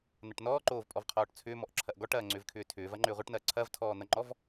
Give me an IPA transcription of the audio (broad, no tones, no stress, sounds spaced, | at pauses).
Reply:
n̪ ɐ ʈ n ɔː ǃ oː v pʼ ɔ v qʰ ɔː ʈ t͡sʰ ʏː m ɔ ʔ ǁʰ ɐ ʔ ɡ ɔ ʈ ɐː ŋ͡ǀ ʏː v kʰ ʏː tʰ ʏː v ɐ ŋ͡ǃ ʏː ʁʷ ɐ ʈ n ɐː ǀʰ ɐ v tʰ ɔː n̪ ɐ ŋ͡ǃ ɔ v